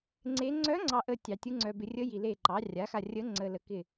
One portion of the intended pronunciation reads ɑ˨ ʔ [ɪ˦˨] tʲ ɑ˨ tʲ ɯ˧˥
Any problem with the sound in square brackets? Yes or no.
yes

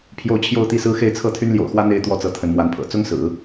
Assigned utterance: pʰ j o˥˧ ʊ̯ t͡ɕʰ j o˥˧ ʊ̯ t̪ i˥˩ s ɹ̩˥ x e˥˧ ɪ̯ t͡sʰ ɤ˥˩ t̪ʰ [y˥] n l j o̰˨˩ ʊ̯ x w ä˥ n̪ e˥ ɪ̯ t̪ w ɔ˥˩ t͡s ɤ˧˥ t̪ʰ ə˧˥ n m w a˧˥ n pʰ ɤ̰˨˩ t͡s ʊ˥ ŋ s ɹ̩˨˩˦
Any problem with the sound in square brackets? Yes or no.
no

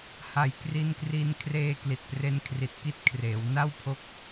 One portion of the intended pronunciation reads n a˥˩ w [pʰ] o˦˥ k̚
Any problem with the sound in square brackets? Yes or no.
no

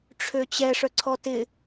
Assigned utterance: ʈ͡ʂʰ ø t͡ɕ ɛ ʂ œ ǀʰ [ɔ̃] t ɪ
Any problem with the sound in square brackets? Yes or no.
yes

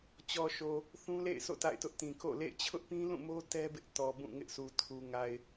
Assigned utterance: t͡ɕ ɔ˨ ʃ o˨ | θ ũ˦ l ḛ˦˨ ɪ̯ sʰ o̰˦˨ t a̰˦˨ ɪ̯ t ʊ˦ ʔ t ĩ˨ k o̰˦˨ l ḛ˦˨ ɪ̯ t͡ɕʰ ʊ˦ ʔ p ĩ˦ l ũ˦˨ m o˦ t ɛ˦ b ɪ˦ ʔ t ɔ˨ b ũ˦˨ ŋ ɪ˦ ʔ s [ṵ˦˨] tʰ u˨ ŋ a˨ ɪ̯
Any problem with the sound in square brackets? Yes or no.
yes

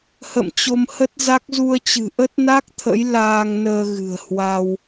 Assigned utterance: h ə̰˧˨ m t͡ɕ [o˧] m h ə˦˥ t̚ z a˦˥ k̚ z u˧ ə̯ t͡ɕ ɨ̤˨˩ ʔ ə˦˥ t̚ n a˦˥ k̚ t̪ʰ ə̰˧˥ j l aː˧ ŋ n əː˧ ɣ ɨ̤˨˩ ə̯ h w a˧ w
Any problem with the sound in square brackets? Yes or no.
no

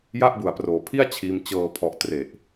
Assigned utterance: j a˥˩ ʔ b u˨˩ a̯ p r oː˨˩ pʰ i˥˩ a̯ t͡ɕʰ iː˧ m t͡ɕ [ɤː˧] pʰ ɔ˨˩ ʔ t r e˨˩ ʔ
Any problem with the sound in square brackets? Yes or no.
no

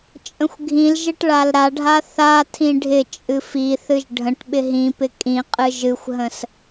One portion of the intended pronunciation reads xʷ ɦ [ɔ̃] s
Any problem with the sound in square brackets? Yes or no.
yes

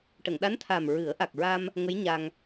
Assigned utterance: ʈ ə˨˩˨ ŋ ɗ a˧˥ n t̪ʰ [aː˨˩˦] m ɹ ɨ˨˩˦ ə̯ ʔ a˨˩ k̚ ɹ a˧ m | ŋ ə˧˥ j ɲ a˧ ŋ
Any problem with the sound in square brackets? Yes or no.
yes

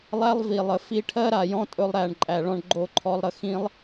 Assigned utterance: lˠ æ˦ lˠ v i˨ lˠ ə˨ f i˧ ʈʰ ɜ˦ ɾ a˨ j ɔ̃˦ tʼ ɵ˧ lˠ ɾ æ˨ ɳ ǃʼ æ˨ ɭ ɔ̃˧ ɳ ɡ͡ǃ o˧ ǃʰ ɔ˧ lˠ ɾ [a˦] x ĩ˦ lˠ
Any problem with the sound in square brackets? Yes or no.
yes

